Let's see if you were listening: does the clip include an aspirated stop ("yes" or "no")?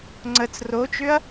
no